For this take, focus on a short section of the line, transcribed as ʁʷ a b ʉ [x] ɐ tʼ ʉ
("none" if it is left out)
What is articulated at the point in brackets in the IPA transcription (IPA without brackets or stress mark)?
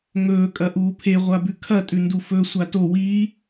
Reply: kʰ